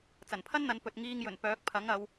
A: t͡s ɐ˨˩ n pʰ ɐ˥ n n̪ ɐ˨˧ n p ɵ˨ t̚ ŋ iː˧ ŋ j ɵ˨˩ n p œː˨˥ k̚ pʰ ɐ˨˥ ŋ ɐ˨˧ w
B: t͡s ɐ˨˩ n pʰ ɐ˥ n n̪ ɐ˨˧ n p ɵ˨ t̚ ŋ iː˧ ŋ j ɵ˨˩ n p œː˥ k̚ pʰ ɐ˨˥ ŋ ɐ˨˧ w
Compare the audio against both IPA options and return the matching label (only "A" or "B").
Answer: A